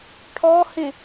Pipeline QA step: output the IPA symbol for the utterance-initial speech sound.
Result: ʈʰ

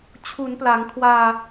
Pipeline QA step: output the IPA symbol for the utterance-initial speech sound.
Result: t͡ɕʰ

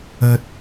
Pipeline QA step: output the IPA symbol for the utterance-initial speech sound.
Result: ɐ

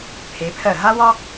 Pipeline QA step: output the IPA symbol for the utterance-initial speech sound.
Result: pʰ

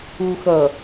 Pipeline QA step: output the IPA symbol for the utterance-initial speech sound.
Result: u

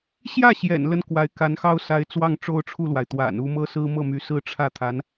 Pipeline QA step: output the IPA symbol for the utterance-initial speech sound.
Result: ɕ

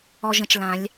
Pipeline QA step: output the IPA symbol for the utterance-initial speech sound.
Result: ɔ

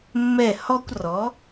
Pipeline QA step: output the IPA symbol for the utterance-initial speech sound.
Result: mː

